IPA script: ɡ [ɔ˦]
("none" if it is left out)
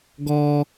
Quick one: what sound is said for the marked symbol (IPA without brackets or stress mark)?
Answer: ɔ˦